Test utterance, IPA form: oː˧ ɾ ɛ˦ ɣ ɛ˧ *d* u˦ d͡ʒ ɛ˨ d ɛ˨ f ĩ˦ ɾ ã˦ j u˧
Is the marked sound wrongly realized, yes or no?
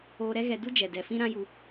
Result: no